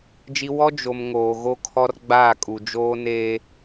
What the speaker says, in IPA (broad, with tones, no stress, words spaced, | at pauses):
d͡ʒi˦ wɔ˦d͡ʒo˨m ŋoː˨ɣo˦kʰɔ˦r ɡ͡baː˦˨kʼu˨ d͡ʒoː˦neː˦